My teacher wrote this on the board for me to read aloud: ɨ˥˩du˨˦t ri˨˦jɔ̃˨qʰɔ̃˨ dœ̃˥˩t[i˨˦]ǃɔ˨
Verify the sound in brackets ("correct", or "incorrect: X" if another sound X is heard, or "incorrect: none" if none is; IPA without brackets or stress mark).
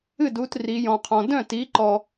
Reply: correct